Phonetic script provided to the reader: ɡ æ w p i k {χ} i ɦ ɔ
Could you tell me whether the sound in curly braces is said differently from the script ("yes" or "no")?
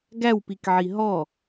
yes